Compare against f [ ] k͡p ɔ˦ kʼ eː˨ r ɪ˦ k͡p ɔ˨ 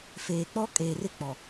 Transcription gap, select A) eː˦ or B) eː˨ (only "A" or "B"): B